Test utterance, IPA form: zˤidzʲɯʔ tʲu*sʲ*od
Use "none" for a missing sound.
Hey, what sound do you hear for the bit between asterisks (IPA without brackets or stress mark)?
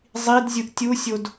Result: sʲ